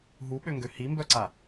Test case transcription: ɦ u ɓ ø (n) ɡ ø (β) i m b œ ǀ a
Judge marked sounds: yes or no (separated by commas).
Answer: no, no